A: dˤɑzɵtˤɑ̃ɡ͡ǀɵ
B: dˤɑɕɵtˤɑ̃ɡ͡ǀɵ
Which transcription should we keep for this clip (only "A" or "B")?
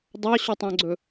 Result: B